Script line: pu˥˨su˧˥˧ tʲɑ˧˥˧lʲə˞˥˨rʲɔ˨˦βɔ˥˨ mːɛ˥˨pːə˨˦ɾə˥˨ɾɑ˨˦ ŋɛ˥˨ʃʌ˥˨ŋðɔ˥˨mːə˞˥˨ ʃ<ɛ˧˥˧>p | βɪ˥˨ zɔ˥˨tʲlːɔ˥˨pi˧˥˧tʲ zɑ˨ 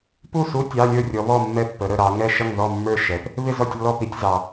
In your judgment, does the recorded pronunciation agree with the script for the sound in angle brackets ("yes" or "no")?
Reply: no